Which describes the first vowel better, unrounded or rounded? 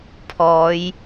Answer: rounded